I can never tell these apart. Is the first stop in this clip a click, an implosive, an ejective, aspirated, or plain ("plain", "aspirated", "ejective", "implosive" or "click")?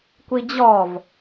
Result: plain